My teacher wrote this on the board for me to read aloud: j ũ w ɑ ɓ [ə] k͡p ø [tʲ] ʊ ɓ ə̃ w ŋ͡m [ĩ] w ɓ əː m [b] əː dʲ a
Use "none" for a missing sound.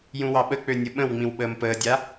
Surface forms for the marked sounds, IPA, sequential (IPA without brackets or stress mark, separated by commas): ə, nʲ, ĩ, p